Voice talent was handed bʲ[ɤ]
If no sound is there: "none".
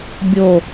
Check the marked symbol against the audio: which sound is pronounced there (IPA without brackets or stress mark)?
o